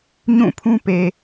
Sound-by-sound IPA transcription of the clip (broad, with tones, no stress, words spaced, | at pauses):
ɲũ˦˨pʰũ˦ pe˨